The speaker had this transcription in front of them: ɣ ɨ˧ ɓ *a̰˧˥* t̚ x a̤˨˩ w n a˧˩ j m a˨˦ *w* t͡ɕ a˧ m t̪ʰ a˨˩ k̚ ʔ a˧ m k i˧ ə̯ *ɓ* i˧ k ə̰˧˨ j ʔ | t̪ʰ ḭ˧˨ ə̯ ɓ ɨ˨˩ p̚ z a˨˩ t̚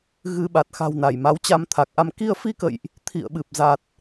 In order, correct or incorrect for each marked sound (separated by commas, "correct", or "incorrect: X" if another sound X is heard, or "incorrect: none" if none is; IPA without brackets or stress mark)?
incorrect: a˨˩, correct, incorrect: f